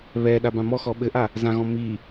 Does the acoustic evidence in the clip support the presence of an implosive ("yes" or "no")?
yes